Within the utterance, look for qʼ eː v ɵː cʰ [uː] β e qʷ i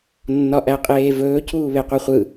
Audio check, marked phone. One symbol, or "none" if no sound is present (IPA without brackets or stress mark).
uː